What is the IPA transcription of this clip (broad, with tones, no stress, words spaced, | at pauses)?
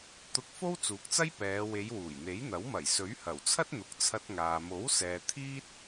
t̪ʊ˧k̚ fo˥wt͡suː˨˥k̚t͡sɐ˥j pɛː˨˧ we˨˧jwuː˨˩jn̪e˨˥jn̪ɐ˨˥w mɐ˨˩j sɵ˨˥ɥhɐ˨˩wt͡sʰɐ˥t̚ n̪ʊ˨k̚ t͡sʰɐ˧t̚ŋaː˨ mo˨˥wsɛː˨ t̪ʰiː˥t̚